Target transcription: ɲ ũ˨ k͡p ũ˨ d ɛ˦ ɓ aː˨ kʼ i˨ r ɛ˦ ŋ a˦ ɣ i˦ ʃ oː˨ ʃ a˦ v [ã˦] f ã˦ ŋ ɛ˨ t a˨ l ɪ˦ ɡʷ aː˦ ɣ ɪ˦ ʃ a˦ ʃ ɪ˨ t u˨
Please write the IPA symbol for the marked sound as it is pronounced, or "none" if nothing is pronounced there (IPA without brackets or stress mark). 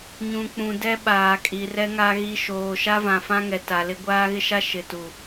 ã˨